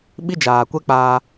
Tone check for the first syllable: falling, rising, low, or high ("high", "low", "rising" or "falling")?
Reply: high